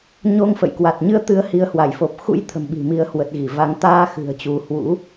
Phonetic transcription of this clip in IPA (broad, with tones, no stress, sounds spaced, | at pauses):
ɲ o˧ ŋ f ə̰˧˨ j k w a˨˩ t̚ ɲ ɨ˧ ə̯ t̪ ɨ˨˦ ə̯ h i˨˦ ə̯ h w a˧˩ j f o˨˩ p̚ x ṵ˧˥ j t̪ʰ ə̤˨˩ m ɓ i̤˨˩ m i˨˦ ə̯ h w ə˨˩ t̚ ɣ i˧˩ v a˨˦ ŋ t̪ aː˧ x ɨ̤˨˩ ə̯ t͡ɕ u˨˦ h w ṵ˧˥